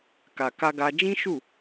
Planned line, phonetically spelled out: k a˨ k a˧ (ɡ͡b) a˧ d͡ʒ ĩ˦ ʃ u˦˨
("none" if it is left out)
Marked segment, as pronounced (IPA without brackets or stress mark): ɡ